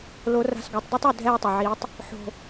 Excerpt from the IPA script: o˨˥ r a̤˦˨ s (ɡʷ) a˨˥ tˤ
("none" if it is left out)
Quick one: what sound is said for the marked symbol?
ɡʷ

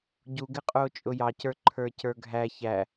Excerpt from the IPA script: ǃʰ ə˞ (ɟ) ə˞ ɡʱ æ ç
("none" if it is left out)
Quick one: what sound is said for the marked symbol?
c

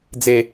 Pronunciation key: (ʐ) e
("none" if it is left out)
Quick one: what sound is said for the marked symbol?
d͡z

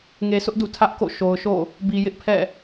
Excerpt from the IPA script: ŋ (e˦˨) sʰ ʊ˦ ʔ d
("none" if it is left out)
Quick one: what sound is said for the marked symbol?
e˨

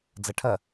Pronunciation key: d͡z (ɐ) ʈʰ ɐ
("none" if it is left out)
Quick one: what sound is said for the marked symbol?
ɐ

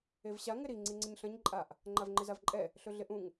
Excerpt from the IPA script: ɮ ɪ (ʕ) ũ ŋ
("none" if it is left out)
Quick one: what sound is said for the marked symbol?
ʔ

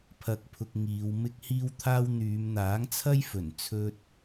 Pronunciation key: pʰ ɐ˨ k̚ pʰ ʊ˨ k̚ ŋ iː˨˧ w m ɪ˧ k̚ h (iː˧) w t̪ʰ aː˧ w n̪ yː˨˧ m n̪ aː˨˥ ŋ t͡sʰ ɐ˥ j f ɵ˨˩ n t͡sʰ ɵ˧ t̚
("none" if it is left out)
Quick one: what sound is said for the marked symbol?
iː˧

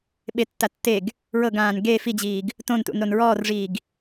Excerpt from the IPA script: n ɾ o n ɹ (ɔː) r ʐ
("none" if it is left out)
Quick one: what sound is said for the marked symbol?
ɔː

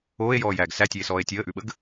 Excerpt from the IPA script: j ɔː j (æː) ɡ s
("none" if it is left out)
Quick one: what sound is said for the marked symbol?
æː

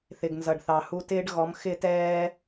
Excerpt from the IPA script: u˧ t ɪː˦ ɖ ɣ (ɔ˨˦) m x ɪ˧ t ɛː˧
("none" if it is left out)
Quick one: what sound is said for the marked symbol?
ɔ˨˦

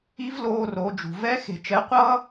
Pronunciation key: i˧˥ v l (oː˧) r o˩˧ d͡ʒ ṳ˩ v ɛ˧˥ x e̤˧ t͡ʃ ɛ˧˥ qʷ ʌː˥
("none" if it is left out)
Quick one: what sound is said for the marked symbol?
oː˧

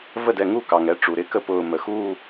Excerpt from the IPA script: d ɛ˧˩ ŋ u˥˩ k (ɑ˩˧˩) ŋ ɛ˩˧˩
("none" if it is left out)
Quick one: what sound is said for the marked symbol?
ɑ˩˧˩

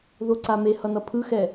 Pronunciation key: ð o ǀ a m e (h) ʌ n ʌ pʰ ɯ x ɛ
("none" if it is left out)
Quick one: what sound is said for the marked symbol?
h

